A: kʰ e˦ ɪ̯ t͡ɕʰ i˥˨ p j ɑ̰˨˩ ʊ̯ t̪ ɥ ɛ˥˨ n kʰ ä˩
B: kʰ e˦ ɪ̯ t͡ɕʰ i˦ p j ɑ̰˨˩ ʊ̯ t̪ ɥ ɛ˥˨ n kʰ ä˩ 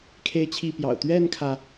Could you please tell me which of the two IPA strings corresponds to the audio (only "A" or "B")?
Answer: A